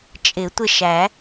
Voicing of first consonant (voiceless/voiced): voiceless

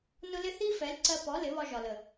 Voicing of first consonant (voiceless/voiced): voiced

